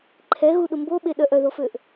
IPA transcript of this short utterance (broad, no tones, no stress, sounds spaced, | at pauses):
ǃʰ ɛ ɣ u ɗ ʊ m b o ɓ e ɗ œ ʔ œ ð o f ø ʔ